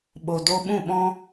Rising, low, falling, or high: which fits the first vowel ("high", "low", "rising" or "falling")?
low